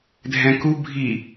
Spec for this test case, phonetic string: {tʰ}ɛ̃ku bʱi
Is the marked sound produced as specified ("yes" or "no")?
no